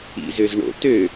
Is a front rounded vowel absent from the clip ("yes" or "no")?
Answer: no